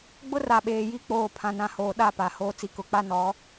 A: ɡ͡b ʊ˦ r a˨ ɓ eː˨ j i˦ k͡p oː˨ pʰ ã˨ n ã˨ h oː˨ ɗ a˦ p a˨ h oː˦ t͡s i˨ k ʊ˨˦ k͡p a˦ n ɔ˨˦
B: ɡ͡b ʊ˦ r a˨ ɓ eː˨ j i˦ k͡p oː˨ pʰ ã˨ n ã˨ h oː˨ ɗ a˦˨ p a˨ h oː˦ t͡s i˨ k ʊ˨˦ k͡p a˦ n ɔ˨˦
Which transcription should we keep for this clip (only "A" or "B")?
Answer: B